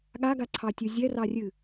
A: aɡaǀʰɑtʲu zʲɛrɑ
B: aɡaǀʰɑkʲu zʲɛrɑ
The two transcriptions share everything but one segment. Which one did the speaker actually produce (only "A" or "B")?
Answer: A